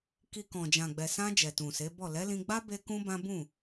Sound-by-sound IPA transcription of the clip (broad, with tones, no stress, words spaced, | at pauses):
ki˨ kɔ̃˨d͡ʒã˨ ɡ͡bɛ˨sã˧ d͡ʒɛ˨tũ˨se˨˦bɔ˦˨ lɛ˨˦lĩ˧ɡ͡ba˦ be˦kũ˦bã˦ bũ˦˨